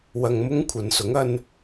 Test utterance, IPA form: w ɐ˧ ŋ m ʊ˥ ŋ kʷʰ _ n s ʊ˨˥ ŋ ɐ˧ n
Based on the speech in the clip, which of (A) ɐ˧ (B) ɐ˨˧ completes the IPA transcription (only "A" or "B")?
B